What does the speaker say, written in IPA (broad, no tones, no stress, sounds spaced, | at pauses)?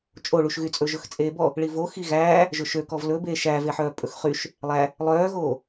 t͡ʃʼ o ɭ u ʃ ɣ y t͡sʼ ɵ ʒ ɵ x t͡sʼ eː b ɔ | ɭ i v o x i ɣ æː | ʒ ɵ ʃ ø k ɔ v l ɵ b eː ʃ æː v e ħ œː pʼ ɵ x χ y ʃ | lˠ æ | lˠ œː ɣ oː